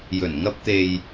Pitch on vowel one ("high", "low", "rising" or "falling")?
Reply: low